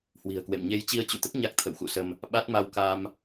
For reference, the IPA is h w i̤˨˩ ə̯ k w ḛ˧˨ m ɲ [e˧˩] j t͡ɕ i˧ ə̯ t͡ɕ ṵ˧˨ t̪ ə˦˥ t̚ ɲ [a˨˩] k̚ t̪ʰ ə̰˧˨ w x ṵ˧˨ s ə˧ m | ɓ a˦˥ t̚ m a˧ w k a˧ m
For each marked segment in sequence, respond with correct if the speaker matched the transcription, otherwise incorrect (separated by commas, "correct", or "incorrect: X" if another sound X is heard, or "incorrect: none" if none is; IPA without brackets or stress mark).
incorrect: e˧, incorrect: a˦˥